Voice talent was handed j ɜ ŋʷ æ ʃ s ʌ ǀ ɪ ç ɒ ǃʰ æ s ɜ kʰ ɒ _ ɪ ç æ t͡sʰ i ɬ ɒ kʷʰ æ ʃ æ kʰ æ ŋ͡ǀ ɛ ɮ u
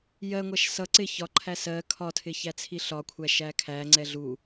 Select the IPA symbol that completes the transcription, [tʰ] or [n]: tʰ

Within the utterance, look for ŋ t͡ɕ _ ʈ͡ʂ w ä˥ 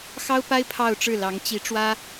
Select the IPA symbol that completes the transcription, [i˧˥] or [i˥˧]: i˧˥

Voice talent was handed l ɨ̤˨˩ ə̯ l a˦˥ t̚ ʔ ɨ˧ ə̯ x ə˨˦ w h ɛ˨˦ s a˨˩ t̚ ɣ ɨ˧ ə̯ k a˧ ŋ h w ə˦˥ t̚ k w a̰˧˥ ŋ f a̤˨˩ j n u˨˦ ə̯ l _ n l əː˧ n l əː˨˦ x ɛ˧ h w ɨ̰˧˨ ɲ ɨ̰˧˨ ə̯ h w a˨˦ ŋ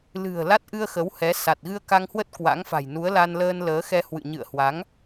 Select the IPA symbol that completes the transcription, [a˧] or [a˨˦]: a˧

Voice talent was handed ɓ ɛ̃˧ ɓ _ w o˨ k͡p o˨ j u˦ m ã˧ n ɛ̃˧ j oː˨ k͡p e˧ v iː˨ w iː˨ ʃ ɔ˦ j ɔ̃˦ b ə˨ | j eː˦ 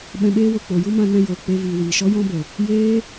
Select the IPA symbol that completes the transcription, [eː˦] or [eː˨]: eː˦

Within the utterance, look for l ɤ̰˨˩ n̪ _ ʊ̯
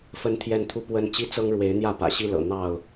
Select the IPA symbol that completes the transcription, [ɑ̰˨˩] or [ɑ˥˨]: ɑ˥˨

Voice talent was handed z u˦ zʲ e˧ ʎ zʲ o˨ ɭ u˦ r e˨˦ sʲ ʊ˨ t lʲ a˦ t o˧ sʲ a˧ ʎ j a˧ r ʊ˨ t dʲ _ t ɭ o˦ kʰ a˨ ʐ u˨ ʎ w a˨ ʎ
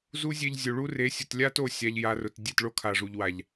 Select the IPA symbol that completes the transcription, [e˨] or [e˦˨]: e˦˨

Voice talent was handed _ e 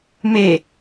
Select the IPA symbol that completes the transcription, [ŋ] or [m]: m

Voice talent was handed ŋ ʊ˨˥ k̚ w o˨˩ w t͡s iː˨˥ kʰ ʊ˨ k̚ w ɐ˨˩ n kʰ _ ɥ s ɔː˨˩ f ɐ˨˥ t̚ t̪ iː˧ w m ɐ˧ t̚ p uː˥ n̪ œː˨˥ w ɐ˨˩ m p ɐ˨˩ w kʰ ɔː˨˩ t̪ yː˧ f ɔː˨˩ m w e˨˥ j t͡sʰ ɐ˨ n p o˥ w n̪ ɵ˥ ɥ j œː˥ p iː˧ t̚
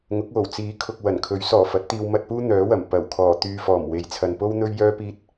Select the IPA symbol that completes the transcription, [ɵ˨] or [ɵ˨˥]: ɵ˨˥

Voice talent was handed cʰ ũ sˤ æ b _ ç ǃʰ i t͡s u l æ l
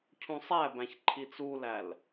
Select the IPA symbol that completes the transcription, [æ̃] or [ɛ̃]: æ̃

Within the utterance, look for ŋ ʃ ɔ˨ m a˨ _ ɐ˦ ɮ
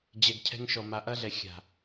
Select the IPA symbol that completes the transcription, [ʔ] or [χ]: ʔ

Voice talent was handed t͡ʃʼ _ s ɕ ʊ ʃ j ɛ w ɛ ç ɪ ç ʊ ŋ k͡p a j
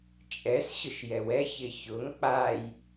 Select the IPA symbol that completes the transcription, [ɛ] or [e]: ɛ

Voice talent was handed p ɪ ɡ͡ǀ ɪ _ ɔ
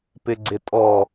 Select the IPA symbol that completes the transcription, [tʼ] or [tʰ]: tʼ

